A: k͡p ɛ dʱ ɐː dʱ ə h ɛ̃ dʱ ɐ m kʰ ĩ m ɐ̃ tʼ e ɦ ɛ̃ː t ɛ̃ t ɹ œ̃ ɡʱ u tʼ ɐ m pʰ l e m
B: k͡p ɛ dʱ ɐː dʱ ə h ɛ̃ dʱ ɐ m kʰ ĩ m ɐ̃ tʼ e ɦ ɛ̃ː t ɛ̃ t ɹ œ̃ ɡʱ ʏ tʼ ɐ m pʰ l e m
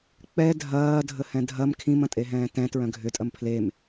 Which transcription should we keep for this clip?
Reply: B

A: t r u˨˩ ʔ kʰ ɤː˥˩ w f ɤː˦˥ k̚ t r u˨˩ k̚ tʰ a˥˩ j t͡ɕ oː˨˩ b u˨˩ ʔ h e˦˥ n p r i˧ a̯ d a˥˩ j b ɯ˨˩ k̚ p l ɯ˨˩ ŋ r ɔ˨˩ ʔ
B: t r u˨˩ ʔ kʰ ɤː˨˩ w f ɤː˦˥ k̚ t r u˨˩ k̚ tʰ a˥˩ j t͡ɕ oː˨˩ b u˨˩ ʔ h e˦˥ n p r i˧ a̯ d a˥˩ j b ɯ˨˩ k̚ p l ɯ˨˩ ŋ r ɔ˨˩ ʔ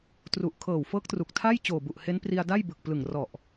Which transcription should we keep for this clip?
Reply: B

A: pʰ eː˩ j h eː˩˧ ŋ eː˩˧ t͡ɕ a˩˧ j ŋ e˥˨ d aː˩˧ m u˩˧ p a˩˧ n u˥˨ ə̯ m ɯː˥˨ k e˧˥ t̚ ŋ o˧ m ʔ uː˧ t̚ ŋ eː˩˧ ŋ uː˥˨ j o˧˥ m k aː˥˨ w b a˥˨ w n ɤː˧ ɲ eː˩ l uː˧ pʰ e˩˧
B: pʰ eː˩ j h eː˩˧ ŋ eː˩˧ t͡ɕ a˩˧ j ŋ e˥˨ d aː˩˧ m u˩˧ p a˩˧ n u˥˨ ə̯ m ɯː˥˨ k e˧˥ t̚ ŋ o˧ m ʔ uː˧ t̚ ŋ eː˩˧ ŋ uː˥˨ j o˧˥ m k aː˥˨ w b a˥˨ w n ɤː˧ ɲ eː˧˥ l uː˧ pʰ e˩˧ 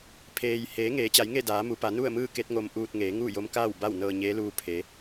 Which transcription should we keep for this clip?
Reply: B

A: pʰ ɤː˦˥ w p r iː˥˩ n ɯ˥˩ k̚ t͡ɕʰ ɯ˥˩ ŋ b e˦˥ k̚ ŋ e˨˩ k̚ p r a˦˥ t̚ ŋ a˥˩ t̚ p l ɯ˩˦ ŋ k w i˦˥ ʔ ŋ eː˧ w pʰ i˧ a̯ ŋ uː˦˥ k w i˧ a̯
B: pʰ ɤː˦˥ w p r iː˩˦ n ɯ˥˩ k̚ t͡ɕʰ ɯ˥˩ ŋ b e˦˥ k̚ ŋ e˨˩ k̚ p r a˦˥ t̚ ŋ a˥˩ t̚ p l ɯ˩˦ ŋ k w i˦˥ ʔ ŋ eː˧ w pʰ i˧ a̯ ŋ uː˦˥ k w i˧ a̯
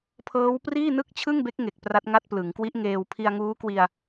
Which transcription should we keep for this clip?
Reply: A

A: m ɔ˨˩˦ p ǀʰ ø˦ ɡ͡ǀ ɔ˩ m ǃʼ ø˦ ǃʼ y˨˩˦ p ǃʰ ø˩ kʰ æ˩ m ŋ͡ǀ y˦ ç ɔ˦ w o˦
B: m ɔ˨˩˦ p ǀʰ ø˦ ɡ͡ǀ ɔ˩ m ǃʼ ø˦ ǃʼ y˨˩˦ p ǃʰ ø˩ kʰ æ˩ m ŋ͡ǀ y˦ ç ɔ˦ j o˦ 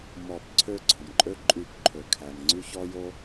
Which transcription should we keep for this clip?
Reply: B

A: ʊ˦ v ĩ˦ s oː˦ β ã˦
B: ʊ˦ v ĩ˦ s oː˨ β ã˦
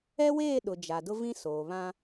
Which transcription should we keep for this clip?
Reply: B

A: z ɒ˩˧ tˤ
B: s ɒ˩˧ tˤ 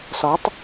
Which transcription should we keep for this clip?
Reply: B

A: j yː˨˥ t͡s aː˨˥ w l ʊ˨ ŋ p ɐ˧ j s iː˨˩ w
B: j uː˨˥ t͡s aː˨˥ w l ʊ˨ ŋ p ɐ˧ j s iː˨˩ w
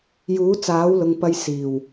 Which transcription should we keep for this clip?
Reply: B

